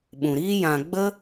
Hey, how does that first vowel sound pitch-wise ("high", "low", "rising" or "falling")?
low